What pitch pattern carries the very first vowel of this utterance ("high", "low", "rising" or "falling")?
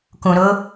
low